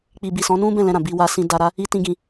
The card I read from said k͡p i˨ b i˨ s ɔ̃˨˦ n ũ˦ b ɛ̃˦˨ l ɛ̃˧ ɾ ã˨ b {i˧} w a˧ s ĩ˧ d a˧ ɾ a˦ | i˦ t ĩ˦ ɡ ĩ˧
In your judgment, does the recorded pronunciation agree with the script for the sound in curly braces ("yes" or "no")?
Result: yes